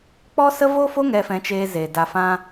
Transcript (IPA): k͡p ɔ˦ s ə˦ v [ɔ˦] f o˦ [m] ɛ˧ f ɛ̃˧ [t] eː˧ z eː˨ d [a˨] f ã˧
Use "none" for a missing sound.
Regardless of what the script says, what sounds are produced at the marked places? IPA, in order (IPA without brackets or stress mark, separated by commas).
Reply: o˦, ŋ, t͡ʃ, a˨